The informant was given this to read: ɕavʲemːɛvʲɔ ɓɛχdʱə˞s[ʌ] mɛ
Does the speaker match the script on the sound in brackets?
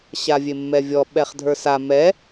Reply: no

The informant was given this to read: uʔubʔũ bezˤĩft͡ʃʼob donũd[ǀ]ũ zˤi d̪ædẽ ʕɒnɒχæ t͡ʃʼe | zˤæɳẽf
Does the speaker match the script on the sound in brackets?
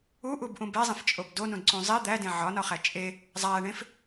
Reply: yes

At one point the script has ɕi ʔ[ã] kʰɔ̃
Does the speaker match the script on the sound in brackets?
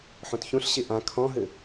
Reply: yes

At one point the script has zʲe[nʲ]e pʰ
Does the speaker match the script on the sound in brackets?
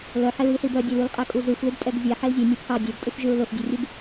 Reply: yes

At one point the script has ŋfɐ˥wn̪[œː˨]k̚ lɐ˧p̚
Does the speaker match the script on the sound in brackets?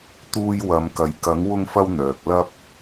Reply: yes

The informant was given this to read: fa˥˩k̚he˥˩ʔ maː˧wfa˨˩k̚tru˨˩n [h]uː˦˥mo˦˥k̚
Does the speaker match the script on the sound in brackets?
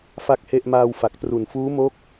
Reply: no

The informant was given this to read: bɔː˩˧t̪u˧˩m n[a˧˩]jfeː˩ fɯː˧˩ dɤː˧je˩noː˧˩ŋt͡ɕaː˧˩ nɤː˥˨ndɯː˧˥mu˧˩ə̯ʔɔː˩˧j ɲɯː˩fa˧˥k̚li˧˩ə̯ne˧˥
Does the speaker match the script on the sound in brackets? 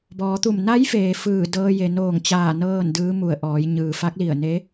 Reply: no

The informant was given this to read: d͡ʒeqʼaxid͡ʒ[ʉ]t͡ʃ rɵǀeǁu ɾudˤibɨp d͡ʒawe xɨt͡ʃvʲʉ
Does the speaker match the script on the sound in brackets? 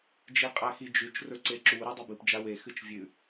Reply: yes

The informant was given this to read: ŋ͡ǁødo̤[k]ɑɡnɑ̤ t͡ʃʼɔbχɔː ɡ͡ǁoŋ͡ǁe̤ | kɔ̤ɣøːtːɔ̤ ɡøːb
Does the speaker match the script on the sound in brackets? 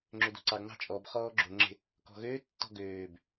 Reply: no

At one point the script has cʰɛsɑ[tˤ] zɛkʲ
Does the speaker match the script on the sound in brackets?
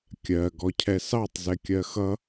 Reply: yes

